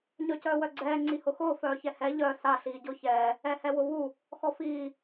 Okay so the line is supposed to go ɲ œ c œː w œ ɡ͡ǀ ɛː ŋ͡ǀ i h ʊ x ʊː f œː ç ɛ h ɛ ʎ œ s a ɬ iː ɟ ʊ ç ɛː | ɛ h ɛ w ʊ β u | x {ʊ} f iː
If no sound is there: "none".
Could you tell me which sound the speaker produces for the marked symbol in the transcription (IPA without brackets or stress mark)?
ɔ